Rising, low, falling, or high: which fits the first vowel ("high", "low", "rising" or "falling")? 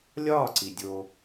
falling